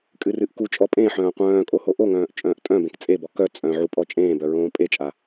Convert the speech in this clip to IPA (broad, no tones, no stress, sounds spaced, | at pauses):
kʼ ɨ r ɨ ʔ k u t͡ʃʼ ɔ pʼ ẽ ħ œ̃ː qʷ œ̃ː kʼ o h o ʔ o ŋ œ̃ː ʔ t͡ʃʼ œ̃ː ʔ tʼ œ̃ b ẽ k t͡sʼ e b ɔ k œ t͡sʼ œ̃ ʕ u pʼ ɔ t͡ʃʼ ẽː b œ ɹ õː pʼ e t͡ʃʼ a